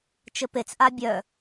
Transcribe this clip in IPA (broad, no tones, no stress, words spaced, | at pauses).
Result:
t͡ʃɘpet͡sʔa bʲœ